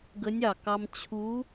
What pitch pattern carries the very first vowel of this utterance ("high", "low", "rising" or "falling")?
rising